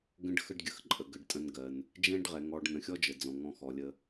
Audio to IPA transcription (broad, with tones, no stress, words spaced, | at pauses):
ɡə̃˦ɖxə˦ɖɡʲə˩xǃʼə˩ ɡə˩ɖtʼə̃˨n ɡɜ˩n | d͡ʒɛ̃˦ɖʁɛ˩ŋɔ˨ɖ nə̃˨xʲɔ˥d͡ʒə˩d͡zɔ̃˩ ŋɔ̃˨ xɔ˩lʲə˨